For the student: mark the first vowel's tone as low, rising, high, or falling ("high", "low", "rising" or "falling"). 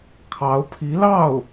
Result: rising